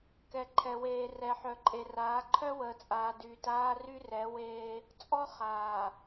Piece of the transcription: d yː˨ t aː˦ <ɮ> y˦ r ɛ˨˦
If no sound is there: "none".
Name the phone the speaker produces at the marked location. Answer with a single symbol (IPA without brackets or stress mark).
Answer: r